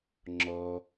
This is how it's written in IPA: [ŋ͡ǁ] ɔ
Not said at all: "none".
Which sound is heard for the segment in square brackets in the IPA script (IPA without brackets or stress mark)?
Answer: ŋ͡ǁ